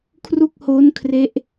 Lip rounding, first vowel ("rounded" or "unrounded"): rounded